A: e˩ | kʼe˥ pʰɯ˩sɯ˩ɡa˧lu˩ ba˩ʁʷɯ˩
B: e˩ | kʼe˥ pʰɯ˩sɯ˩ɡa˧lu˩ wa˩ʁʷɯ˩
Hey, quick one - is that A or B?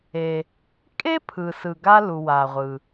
B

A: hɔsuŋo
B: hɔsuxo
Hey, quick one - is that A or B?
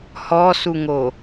A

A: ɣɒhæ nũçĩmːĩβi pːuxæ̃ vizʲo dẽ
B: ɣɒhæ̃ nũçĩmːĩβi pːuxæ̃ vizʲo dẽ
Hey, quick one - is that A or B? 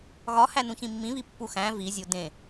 A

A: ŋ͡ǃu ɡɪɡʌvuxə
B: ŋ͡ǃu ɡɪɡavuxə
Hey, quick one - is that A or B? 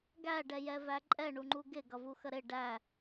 A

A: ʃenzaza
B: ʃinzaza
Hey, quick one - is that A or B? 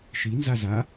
B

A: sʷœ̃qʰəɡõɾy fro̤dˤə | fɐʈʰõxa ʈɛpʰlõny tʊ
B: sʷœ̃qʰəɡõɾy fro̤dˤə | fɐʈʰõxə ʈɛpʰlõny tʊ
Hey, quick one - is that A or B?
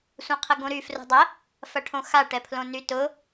A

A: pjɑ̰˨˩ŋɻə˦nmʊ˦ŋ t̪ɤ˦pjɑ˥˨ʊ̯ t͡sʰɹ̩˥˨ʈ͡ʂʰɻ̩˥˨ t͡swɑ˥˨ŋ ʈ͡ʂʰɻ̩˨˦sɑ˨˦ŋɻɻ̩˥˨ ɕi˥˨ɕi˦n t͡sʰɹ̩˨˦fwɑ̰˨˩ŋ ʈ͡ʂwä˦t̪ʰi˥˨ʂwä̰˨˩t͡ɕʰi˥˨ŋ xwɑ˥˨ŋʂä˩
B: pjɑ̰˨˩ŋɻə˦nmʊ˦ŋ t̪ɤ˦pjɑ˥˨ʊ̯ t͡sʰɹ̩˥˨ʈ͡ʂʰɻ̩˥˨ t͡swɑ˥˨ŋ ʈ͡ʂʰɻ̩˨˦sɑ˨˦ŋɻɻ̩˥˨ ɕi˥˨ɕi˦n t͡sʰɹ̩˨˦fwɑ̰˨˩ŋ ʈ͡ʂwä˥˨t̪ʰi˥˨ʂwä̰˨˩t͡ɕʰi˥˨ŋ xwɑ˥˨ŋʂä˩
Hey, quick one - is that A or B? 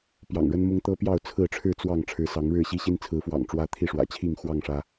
A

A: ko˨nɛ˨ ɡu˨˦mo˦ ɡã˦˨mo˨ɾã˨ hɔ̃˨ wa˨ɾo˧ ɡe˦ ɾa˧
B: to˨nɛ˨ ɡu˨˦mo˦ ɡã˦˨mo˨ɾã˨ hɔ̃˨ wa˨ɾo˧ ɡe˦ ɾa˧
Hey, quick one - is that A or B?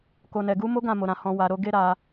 A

